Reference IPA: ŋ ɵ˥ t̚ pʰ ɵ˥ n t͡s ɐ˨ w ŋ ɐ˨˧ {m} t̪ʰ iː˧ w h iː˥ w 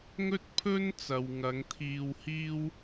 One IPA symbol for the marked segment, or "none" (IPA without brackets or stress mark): ŋ